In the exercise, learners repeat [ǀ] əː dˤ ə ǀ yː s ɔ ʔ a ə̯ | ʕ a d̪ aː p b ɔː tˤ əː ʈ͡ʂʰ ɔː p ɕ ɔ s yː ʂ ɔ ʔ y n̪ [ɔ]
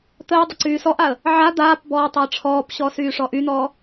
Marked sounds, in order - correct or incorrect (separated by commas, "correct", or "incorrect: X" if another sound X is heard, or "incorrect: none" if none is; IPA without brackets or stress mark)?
incorrect: t̪, incorrect: ɔː